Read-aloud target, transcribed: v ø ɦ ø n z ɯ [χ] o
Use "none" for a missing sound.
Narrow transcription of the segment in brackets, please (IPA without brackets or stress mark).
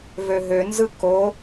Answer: k